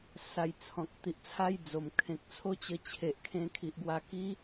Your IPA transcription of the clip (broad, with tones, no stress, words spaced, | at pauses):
sa˧jt͡sʰɔ̃˨k̚ t̪i˨ʔt͡sʰa˦j d͡zo˨˩m kʰẽ˨k̚t͡sʰo˦t͡ɕə˧ t͡ɕʰe˨ʔkʰẽ˧ kʰi˨ʔɡwa˧ ki˦